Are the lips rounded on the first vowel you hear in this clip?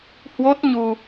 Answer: yes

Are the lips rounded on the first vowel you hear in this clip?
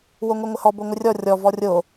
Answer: yes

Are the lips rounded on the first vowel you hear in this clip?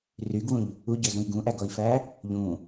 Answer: yes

